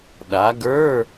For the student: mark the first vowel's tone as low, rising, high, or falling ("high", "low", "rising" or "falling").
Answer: rising